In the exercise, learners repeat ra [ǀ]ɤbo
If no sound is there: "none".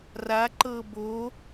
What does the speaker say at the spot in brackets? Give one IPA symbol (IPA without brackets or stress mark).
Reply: ǃ